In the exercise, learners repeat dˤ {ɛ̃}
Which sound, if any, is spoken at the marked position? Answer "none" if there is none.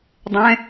ɛ̃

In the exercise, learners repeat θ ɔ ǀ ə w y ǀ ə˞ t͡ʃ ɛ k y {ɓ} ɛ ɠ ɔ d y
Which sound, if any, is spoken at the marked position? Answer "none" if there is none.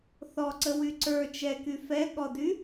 f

